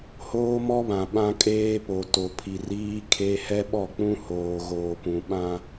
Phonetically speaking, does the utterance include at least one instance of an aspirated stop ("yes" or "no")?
yes